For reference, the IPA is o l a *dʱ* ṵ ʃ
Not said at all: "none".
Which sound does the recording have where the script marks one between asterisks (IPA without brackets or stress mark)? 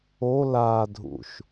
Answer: dʱ